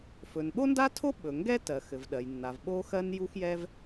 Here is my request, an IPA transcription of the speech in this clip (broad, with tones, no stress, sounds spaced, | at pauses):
f ɵ˩ n ɓ o˥ n d a˥ tʰ o˥ ɓ ɵ˩ ŋ ɡ ɛ˥ t ɜ˩ x ɘ˩ v ɗ ɜ˩ j nː a˩ v ɓ o˥ x ɜ˥ n j u˥ x j ɛ˥ v